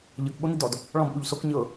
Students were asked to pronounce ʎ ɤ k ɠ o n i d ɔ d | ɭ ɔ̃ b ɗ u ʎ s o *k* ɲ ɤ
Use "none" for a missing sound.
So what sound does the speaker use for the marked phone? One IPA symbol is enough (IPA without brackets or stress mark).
k